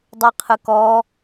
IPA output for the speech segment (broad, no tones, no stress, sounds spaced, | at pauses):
dˤ ɯ qʰ ɯ k ɔ